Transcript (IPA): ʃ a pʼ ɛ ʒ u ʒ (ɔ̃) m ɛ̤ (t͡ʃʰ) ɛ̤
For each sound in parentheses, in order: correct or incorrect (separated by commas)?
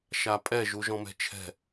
correct, correct